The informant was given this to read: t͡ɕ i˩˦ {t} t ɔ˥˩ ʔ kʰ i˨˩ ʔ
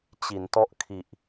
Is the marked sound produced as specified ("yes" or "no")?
no